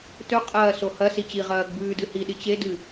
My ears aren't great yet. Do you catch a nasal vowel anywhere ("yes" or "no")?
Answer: no